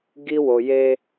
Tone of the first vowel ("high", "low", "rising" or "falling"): high